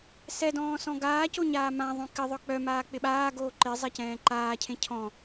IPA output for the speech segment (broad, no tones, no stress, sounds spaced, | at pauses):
s ɛ d ɔ̃ː s ɔ̃ ɡ aː c o ɲ aː m ã ðˤ õ k ɪ ðˤ œ k͡p œ m aː k͡p ɪ ɓ aː ɡ oː ǃ ɪ zˤ ɛ c ɛ̃ː ǃ aː cʰ ẽ cʰ ɔ̃